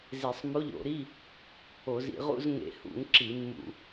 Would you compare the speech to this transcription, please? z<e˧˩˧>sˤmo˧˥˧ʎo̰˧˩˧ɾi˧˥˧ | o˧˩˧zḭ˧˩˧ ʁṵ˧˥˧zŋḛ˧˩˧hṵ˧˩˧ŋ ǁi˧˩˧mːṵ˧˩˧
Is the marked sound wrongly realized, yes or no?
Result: no